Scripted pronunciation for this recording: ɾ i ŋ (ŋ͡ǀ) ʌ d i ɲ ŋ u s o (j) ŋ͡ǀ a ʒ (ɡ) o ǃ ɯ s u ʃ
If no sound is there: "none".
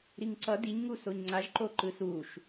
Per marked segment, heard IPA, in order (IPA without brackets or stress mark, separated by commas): ǀ, ɲ, ǃ